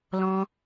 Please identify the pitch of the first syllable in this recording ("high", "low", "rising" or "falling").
high